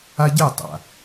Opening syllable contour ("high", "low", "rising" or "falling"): high